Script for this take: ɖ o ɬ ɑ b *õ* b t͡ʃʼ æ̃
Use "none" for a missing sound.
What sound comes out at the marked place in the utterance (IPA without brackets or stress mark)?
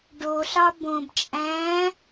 õ